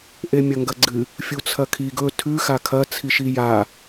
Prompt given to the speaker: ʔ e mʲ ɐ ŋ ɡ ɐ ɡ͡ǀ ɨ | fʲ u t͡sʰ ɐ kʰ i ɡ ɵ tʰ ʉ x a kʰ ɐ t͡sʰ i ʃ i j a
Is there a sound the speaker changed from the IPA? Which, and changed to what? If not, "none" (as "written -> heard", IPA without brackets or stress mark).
none